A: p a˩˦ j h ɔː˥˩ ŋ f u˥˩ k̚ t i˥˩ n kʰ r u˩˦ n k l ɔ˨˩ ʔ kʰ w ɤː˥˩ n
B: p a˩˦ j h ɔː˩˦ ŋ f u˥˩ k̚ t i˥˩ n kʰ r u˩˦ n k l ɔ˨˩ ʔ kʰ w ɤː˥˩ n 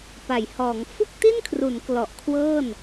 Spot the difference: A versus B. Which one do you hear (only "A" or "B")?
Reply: B